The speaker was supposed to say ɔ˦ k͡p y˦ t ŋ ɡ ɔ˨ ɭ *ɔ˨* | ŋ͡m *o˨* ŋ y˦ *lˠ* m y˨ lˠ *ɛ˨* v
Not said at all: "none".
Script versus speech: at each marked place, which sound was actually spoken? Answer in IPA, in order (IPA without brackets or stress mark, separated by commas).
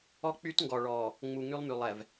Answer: ɔ˨, u˨, lˠ, ɛ˨